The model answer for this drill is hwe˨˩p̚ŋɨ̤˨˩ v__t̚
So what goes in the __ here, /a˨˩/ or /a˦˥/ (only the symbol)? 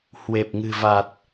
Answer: a˨˩